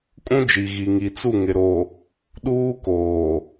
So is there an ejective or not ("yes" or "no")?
yes